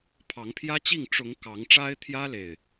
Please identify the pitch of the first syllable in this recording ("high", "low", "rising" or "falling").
rising